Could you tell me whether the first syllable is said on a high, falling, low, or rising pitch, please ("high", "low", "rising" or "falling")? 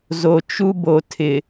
low